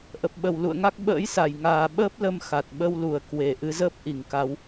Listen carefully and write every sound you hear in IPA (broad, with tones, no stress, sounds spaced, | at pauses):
ʔ ə˨˩ p̚ ɓ ə˨˩ w l ṵ˧˨ ə̯ ŋ a˦˥ k̚ ɓ ə̰ː˧˥ j s a˧˩ j ŋ aː˨˩ ɓ əː˦˥ p̚ l ə˧ m x a˨˩ t̚ ɓ ə˧ w l u˧˩ ə̯ k w e˨˩ ʔ ɨ˨˦ z əː˦˥ p̚ ʔ i˨˩ ŋ k a˨˦ w